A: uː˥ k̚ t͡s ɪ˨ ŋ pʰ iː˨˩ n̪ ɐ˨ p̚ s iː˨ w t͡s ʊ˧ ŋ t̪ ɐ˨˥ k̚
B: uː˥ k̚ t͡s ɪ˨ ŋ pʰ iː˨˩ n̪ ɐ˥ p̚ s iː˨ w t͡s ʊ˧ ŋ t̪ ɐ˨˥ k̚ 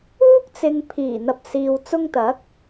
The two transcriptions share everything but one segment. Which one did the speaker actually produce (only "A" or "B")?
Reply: A